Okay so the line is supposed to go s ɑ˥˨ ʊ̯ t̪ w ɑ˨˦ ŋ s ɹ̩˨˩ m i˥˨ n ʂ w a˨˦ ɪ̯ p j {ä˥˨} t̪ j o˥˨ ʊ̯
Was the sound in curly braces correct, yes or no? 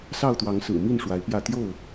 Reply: yes